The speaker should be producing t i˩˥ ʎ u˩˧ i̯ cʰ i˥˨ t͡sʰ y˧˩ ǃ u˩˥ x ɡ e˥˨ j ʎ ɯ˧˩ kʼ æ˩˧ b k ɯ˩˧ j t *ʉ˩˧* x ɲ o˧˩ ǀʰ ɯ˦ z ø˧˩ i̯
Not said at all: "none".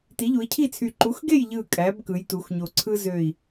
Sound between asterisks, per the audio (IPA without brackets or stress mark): u˩˧